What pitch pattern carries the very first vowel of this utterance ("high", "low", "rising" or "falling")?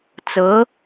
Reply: rising